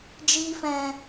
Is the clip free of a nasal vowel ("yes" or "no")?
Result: no